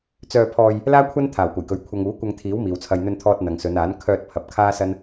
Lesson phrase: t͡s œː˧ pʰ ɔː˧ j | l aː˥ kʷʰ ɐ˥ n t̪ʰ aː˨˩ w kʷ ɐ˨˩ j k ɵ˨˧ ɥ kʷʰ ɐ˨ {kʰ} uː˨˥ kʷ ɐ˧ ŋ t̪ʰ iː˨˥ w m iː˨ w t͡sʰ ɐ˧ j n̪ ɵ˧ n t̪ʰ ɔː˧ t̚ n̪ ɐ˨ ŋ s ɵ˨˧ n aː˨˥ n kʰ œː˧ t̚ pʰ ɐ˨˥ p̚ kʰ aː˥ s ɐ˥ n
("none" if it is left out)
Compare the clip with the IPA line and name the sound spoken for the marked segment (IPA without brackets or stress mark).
ŋ